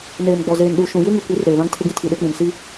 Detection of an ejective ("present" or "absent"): absent